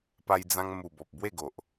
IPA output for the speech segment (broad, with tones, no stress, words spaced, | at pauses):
pa˧jd͡zã˧ŋ mu˨˩ bɔ˨p̚bwe˥˧ɡo˨ʔ